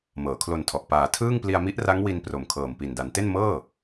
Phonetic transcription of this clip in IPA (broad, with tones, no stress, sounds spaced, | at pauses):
m ɤː˩˦ kʰ l o˧ n tʰ ɔ˨˩ ʔ p aː˩˦ tʰ ɯː˥˩ ŋ p l i˧ a̯ m i˦˥ ʔ r a˦˥ ŋ w i˧ n p r o˨˩ m kʰ ɤː˨˩ m p i˨˩ n d a˩˦ n t e˥˩ n m ɤː˥˩